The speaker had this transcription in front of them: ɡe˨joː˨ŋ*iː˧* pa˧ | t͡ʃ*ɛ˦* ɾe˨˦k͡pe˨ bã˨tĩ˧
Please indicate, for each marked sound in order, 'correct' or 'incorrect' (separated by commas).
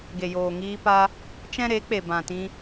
correct, incorrect